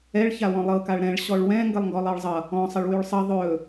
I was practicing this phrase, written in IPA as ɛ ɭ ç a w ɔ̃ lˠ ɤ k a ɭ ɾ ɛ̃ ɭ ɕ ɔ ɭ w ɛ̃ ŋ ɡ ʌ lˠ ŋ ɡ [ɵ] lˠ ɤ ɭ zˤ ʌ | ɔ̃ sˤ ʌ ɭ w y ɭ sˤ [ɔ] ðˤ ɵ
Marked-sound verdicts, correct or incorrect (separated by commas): incorrect, incorrect